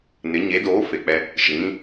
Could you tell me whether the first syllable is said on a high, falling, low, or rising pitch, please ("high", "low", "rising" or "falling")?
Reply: rising